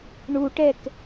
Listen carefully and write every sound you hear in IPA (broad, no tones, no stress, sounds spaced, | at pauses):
ɳ u ʈ ɛ k